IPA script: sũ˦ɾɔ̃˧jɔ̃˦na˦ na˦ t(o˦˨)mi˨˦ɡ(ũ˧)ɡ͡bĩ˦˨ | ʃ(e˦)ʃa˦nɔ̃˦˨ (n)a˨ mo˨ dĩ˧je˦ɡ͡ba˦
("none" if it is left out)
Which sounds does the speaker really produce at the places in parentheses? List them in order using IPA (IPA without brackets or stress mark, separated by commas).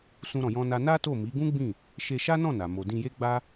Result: o˦˨, ũ˦, e˧, n